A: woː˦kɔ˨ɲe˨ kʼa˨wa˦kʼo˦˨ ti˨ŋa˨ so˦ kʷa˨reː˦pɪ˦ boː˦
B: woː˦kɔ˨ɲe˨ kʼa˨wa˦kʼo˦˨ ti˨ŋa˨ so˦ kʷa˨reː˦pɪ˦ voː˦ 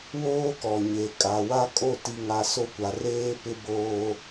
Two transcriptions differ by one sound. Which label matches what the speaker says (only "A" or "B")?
A